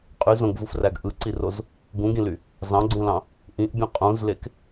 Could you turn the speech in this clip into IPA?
qʼy zõɡvufræɡ ʔɯǀiroz | ɡũɡĩly | zɑ̃ɡ͡ǀũlɑ̃ | ʔĩʔbʲũ qʼũzlek

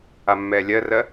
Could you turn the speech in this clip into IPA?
amːɛːlʲɜrɜ

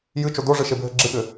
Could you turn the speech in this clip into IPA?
jɨt͡ʃo doʐɨʃebʱɘ ɡ͡ǁɨɠɘ

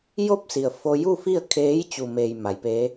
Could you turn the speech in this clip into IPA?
jo˥˨p̚si˩ə̯ fo˧ju˥˨fi˥˨ə̯ kʰeː˧˥j t͡ɕu˩meː˩j ma˩˧jpeː˧˥

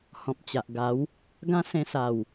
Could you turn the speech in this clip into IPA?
hɔ̃˨p̚t͡ɕa˨ʔɡa˨˦w | ɡã˦sẽ˧ sa˨˩w

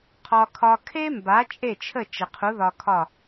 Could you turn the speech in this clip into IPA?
qʰɒ˧kʰɒ˧ kʰe˥mba˩˥ t͡ʃʼe˥˩t͡ʃʰə˥˩ t͡ʃə˩qʰu˩˥ ðɒ˧kʰɒ˥˩

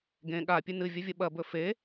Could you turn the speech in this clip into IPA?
ɡẽ ɠapʲɨ nɨvʲɐvʲɐ ɓɐbɵ fe

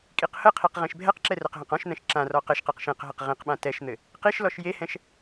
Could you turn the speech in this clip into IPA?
kʼiqhəqʰiq ʁẽʃbʱɛqǁɛ rɘqɦə̃qɔ̃ʃn̪ɛ̃ʃ ǁãrɔ qɘʃqeq ʃẽqɦɘq ʁĩqɓã tɛʃn̪ɘ | qiʃlɔʃ jehɛ̃ʃ

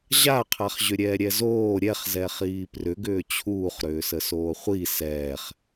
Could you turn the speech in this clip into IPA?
ʑaqʰaχʑʏ ɾʲɛːɾʲɛzoː ɾʲɛχzɛ χiːprʏɡʏː t͡ɕʰuːχɾʏː səsoːχʷi sɛːχ

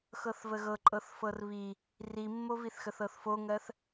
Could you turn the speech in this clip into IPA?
xɤθvəɣɤ ǃʼɤθfɤrβi | rimːoviθxəθ ɤθfoŋɜθ

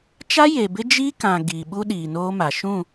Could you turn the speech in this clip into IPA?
t͡ʃa˦ je˨bɪ˦ d͡ʒiː˦kã˨ ɡiː˨ɓu˦ ɗiː˨noː˦ma˨ ʃũ˦˨

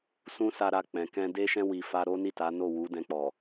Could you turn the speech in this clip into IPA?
sũ˦sa˧ɾa˧ k͡pɛ̃˨kɛ̃˧de˦ʃɛ̃˦ wi˧ fa˧ ɾo˦ni˦˨ta˨˦ no˦˨wu˨˦dɛ̃˧k͡pɔ˨

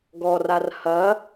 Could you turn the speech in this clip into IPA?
ɡɔrar hɐ

